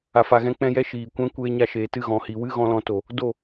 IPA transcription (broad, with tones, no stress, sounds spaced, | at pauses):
a˨ f a˨ ɣ ɛ̃˧ k͡p ɛ̃˧ j ɛ˧ ʃ iː˨ kʷ ɛ̃˦ kʷ eː˧ ɲ a˧ ʃ eː˨ t ɨ˦˨ ɣ ɔ̃˨ h i˨ w ɨ˦ ɣ ɔ̃˧ l ɔ̃˧ t o˨ | d o˦˨